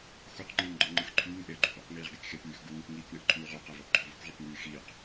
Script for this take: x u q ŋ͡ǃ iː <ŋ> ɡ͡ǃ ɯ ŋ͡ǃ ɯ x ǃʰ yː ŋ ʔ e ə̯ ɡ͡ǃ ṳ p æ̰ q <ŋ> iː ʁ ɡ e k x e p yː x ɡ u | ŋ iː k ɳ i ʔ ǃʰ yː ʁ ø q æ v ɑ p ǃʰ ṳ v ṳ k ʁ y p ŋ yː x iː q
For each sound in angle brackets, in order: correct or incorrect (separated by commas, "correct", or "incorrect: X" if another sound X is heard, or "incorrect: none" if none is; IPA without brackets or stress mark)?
correct, correct